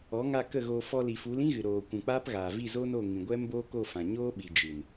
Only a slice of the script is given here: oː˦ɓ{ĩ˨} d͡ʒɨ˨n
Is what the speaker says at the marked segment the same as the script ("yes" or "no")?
no